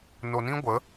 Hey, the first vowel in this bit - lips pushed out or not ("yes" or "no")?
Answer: yes